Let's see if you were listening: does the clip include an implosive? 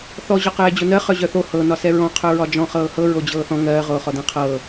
no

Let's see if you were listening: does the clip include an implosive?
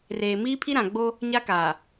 no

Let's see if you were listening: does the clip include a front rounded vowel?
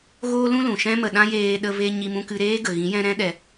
no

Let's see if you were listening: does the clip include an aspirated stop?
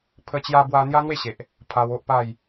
yes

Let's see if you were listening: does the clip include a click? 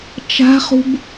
no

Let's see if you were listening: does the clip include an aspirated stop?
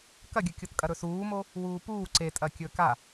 no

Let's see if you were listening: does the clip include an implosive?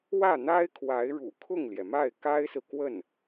no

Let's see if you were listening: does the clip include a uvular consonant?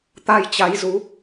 no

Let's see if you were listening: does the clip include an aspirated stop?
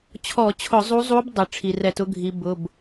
yes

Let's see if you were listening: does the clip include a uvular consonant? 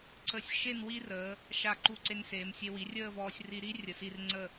no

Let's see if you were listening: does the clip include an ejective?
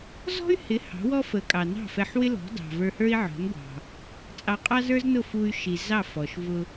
yes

